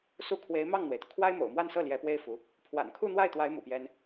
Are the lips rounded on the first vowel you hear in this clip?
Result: yes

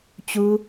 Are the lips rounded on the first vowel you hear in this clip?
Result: yes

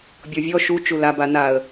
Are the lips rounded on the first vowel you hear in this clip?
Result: yes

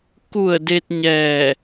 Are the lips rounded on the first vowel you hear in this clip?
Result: yes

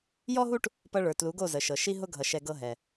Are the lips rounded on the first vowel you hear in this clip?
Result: yes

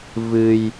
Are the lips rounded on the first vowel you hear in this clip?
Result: no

